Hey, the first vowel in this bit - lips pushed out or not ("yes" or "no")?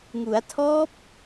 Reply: yes